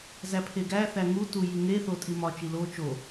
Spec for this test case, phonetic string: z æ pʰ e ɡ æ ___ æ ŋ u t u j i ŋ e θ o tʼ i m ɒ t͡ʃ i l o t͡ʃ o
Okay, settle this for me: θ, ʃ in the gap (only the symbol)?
θ